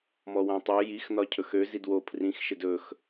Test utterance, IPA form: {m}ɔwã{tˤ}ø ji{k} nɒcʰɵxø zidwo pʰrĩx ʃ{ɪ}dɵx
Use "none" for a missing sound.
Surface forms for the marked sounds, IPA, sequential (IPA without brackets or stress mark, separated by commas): m, tˤ, x, ɪ